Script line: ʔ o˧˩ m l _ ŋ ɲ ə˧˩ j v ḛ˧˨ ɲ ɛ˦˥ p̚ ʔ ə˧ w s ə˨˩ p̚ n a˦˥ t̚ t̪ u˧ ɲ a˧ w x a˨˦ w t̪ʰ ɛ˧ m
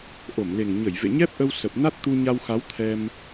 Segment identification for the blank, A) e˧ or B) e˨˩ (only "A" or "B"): B